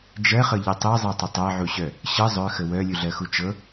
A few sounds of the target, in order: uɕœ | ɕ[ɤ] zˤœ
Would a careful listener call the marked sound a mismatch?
no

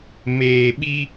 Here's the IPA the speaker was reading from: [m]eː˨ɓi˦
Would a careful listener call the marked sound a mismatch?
no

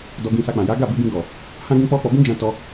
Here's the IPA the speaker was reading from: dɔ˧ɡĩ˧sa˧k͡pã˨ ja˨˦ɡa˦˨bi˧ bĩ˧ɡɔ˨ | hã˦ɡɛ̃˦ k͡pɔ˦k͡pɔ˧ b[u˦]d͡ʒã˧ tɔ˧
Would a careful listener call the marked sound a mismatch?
yes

